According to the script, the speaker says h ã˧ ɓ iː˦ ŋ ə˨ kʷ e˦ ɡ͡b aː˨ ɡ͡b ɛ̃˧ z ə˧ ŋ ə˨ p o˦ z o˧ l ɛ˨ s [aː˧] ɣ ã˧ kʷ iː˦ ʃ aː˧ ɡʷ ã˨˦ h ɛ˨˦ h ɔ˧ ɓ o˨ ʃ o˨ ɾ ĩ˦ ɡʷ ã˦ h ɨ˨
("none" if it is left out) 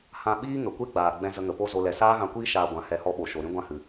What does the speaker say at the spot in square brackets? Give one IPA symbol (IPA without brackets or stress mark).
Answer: aː˦